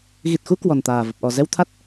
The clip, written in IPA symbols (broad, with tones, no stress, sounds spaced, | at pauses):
ɣ i˨˩ t̚ x u˧ k w ɔ˨˩ n t̪ aː˨˩ v ə˨˩ p̚ ʔ ɔ˨˩ z ɛ˧ w t̪ʰ a˦˥ t̚